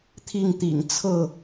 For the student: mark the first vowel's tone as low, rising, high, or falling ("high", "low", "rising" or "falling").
falling